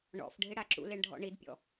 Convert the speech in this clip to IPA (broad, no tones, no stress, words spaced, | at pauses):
ɳɔ̰fɖʱɪ ɽaǁṵleɳ ɖʱɔ̰ɳidpʲɔ̰